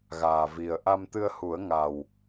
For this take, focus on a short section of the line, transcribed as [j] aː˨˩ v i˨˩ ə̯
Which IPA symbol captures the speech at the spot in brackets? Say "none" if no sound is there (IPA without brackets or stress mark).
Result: ɣ